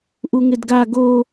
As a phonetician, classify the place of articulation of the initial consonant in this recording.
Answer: glottal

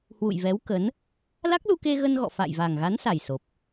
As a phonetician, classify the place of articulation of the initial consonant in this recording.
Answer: glottal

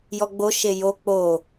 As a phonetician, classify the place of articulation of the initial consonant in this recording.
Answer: palatal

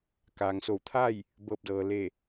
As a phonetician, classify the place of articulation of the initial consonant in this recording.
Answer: velar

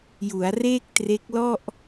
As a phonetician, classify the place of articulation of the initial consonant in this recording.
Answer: palatal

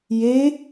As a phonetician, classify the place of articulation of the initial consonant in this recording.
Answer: palatal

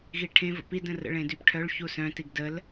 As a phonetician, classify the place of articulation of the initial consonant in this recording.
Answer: velar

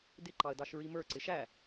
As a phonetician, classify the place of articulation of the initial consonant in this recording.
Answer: alveolar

